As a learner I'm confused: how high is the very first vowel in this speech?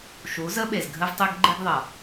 high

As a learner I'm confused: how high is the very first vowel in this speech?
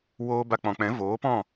mid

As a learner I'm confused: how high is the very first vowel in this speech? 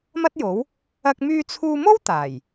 low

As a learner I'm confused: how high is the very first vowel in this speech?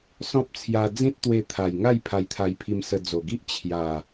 mid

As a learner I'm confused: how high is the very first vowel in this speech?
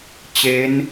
mid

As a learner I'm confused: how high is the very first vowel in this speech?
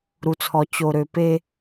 high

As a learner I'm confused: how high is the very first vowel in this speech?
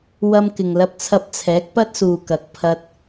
low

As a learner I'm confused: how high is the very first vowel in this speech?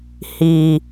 high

